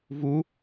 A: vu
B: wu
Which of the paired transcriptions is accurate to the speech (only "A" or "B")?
A